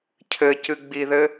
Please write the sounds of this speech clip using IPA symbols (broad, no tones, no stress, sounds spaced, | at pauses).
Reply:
cʰ ɘ c ɨ ɡ͡b i ð ɘ